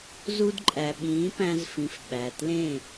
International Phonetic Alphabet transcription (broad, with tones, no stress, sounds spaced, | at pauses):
z u˧ d ǃʼ æ˨ ɓ ĩː˨˦ p æ̃˧ z f ĩ˨ f ɓ æ˨ t l ẽ˦˨